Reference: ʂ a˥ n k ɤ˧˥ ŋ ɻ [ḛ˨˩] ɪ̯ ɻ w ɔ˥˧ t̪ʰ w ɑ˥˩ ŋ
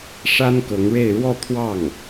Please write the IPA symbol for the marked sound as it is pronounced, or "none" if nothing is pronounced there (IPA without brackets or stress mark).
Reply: e˥˧